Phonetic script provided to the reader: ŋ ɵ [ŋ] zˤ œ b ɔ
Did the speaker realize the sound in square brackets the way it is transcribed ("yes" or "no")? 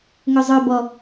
no